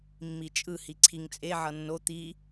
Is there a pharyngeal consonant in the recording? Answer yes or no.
yes